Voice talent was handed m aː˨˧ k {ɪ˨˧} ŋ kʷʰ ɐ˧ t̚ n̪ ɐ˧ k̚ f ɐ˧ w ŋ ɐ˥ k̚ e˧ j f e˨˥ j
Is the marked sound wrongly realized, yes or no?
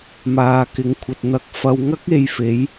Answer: no